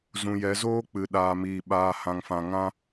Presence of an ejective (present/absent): absent